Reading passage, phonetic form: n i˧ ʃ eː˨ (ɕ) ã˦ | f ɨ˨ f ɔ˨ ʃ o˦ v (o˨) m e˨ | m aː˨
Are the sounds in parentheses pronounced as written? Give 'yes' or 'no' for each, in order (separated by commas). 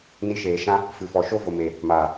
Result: no, yes